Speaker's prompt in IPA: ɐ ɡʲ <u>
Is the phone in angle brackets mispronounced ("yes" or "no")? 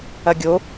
yes